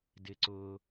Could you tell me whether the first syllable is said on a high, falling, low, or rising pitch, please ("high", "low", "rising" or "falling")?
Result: low